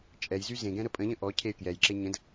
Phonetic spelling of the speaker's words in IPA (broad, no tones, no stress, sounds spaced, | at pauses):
t͡ʃʼ ɛ j z y z ẽ ɡ ɛ̃ ɾ ə pʼ ə̃ ʎ ə̃ ʔ ɔ cʰ e y̯ k j ɛ j ǁ e ɲ ə̃ d